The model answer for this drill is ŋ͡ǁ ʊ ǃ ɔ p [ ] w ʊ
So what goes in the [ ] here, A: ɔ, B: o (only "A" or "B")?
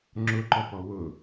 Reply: A